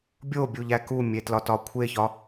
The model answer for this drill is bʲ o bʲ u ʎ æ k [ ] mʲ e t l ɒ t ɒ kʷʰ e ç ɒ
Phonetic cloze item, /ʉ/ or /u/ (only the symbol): u